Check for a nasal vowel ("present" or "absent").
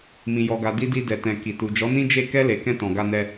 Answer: present